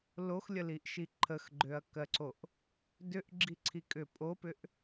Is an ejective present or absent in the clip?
present